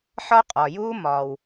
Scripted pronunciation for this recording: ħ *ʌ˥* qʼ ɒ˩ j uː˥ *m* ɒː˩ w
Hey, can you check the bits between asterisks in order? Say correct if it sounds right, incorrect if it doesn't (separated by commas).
incorrect, correct